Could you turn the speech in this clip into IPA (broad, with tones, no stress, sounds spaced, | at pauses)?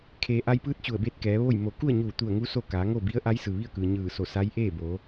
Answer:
kʰ eː˩ ʔ a˧ j p ɯː˧˥ t̚ t͡ɕ u˧˩ ə̯ b eː˥˨ t̚ k ɛː˩˧ ʋ o˥˨ j m o˧˩ k u˥˨ ə̯ ɲ uː˧˩ t̪ u˧˩ ə̯ ŋ u˧ s o˥˨ k aː˩˧ ŋ o˥˨ b i˧˥ ə̯ ʔ a˧˥ j s ɯː˩ ʋ i˥˨ ə̯ k ɯː˩ ɲ ɯː˧˩ s o˧˩ s a˧˥ j ʔ eː˥˨ b o˩˧